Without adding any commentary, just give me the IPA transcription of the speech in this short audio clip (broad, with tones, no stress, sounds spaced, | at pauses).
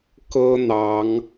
k ɤ˦ n̪ ɑ˨˦ ŋ